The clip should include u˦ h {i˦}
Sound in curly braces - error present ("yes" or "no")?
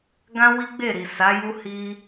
no